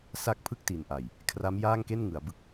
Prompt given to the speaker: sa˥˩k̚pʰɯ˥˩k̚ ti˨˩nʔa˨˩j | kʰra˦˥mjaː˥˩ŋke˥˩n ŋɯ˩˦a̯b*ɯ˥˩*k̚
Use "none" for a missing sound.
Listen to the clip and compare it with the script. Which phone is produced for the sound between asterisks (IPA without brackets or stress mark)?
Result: ɯ˦˥